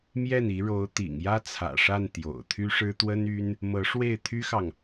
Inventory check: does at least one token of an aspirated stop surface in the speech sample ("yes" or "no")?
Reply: yes